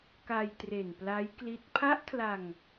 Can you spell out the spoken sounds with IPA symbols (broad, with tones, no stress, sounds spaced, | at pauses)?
k a˧ j t r e˨˩ n p l a˦˥ j k l i˦˥ t̚ pʰ a˦˥ ʔ kʰ l a˧ ŋ